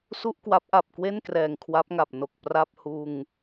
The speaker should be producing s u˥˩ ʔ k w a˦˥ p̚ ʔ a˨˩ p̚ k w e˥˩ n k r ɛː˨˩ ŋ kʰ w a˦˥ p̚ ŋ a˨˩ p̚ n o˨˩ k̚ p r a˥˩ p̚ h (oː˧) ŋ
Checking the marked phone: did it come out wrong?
yes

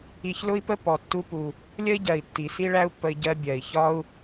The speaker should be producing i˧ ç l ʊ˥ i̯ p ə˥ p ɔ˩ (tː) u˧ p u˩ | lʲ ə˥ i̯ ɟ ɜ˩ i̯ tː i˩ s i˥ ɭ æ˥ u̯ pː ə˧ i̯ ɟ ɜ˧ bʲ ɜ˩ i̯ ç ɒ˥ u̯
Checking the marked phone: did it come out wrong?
no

